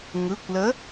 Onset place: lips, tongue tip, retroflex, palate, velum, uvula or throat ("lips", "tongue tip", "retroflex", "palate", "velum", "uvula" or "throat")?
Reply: velum